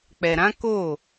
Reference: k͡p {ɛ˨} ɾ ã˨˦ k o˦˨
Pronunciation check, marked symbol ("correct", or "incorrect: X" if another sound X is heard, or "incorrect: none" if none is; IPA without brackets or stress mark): correct